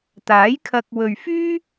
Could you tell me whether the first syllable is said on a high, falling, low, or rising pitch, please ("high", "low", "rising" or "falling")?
rising